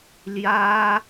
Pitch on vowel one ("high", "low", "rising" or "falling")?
high